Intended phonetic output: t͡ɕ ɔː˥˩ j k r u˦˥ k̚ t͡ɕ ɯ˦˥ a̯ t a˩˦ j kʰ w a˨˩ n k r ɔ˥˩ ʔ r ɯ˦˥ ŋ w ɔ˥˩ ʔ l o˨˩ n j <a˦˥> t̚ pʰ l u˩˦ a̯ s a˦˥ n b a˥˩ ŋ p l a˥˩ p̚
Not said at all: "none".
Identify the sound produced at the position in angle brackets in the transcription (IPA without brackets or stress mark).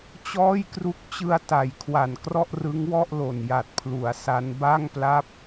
a˨˩